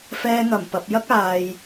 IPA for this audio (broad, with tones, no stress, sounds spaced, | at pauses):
f ɛː˧ ŋ ɐ˨˩ m p ɐ˨ p̚ j ɐ˥ k̚ aː˨ j